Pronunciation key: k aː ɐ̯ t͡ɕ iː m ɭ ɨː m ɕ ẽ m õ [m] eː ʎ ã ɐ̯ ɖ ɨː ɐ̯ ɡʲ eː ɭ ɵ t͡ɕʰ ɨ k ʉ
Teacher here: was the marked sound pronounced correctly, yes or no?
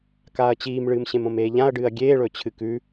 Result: yes